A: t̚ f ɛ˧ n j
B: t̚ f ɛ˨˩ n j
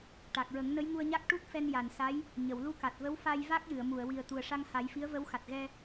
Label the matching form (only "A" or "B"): A